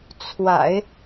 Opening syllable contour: low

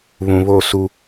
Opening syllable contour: low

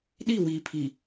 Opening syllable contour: falling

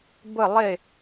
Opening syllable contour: falling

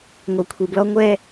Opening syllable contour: low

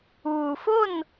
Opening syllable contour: low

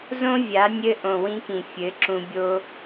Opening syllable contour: high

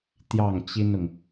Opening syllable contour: falling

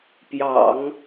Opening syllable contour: low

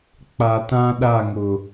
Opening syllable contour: low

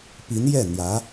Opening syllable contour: rising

